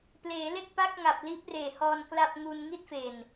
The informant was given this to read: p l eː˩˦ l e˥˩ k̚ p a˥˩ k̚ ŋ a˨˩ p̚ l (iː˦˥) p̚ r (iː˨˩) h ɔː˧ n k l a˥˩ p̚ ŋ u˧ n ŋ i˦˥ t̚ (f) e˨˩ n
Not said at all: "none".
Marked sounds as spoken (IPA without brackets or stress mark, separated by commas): iː˦˥, eː˨˩, f